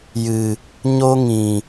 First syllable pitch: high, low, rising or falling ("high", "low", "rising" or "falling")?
low